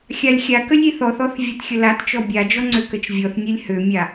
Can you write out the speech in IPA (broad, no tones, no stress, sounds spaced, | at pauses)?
xʲ a lʲ xʲ a k ə lʲ i θ ɔ θ ɔ θ vʲ a t xʲ ə l a t t͡ʃ ɔ bʲ a d͡ʒ ɔ ŋ͡ǀ ø k ə t͡ʃ vʲ ɔ θ nʲ ø lʲ h ø mʲ a